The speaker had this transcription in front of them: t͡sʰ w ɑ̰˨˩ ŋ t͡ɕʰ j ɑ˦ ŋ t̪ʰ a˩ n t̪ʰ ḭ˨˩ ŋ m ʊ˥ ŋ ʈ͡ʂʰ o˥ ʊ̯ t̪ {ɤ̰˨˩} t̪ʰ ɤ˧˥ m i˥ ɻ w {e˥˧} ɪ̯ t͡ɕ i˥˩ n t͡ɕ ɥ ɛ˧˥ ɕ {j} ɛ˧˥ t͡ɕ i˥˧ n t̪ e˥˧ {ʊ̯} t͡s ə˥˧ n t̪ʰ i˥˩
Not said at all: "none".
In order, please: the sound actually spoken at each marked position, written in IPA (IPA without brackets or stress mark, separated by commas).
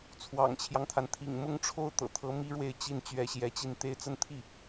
ɤ̰˨˩, e˥˧, j, ɪ̯